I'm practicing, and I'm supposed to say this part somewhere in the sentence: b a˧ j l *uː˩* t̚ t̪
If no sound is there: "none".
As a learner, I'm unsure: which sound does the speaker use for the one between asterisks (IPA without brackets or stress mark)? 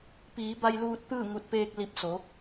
uː˧